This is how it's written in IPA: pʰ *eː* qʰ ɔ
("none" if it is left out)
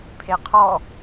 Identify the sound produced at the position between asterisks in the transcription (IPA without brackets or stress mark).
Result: e